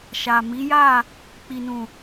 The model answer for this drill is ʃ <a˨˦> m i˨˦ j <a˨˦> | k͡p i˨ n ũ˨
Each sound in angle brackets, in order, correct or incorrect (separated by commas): incorrect, incorrect